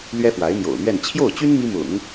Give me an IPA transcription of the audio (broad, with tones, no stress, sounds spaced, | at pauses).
l ɥ ɛ˥ f w a˧˥ ɪ̯ n̪ j o̰˨˩ ʊ̯ n̪ ɥ ɛ˥˧ n t͡ɕʰ j o˥˩ ʊ̯ t͡ɕ y˥ n m i˥ m ʊ̰˨˩˦ ŋ